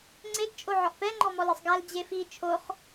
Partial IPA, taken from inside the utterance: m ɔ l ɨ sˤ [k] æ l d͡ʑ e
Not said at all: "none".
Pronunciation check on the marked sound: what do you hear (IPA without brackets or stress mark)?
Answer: ɡ